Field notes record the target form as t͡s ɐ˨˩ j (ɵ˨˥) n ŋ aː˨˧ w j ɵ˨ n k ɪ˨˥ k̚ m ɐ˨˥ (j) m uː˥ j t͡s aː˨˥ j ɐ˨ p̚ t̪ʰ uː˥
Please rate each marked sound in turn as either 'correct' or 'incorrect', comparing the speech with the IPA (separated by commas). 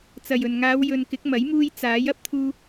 incorrect, correct